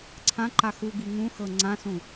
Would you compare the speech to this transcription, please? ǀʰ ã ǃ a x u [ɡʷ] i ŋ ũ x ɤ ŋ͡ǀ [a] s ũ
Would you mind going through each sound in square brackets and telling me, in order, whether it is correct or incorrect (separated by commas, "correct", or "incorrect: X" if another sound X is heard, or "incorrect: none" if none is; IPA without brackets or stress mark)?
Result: incorrect: ɡ, incorrect: ã